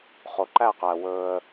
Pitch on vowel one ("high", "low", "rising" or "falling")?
low